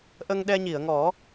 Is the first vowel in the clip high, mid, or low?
mid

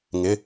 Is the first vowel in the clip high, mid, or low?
high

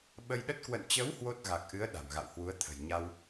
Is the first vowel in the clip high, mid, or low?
mid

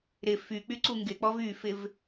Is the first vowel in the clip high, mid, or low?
high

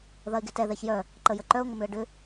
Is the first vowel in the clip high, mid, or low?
low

